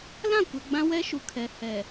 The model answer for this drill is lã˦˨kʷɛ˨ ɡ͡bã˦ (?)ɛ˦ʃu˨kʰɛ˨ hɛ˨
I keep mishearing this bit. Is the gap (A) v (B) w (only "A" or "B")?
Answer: B